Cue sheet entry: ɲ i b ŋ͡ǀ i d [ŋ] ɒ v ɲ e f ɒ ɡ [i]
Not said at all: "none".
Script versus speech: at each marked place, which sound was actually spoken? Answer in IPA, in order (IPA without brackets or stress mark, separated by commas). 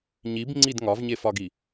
ŋ, i